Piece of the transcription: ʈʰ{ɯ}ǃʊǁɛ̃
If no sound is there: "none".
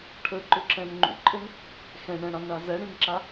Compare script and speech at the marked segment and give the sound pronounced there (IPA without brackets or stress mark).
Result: ə